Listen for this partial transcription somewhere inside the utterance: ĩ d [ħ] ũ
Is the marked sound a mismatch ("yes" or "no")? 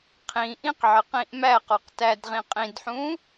no